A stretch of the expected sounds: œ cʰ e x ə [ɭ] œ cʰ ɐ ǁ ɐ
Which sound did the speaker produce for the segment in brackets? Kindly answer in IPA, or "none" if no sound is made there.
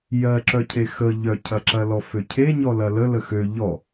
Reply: ʎ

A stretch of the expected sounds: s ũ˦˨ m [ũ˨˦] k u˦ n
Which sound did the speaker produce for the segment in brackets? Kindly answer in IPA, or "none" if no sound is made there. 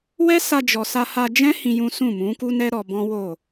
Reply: ũ˨˦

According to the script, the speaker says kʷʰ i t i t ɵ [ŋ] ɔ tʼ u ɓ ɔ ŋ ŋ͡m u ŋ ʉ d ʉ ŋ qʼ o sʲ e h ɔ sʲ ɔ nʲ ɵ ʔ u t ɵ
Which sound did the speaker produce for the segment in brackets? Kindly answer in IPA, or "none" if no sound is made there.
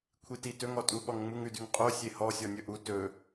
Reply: ŋ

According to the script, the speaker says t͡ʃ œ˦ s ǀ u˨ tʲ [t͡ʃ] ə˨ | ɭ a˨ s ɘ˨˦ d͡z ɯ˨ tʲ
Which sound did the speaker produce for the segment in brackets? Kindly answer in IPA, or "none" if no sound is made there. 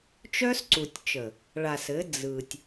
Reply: t͡ʃ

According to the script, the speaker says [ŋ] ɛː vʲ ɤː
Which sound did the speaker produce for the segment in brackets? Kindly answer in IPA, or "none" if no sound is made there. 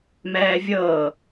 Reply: m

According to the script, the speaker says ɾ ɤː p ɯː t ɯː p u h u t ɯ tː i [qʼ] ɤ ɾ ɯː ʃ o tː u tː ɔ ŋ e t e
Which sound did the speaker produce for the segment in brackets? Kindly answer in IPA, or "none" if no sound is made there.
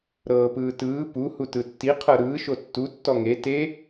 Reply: qʰ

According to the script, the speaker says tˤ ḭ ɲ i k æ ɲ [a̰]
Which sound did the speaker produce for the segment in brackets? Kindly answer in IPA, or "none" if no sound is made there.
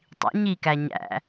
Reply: æ̰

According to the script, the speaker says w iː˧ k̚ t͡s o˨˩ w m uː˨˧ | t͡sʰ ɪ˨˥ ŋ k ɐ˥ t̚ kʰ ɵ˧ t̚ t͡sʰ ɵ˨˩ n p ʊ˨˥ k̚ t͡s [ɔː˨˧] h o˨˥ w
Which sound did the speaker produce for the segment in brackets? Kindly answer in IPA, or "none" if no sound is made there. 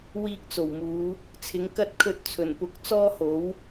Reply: ɔː˥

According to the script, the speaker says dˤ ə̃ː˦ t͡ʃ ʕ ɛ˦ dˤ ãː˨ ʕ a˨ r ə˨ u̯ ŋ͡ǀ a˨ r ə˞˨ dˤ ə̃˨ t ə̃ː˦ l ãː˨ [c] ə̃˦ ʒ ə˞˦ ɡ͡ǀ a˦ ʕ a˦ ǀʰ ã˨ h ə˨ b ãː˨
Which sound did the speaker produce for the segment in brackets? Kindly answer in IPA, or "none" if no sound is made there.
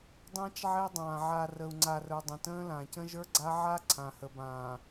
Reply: c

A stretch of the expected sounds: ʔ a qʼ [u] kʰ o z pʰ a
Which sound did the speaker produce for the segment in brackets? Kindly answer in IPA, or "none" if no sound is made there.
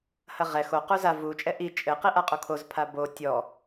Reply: u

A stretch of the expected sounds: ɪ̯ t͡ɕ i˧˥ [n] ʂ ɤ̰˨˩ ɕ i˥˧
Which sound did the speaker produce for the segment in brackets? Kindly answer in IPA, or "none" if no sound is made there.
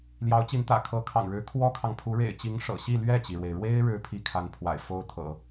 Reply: ŋ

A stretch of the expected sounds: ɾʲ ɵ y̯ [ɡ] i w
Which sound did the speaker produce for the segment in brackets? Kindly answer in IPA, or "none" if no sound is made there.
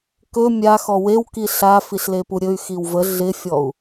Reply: x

